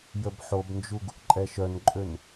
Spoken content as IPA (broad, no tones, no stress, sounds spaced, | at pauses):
j ə b ħ o b n d͡ʒ u ɡ | ǃʼ ɛ ʃ œ n ǃʼ ø n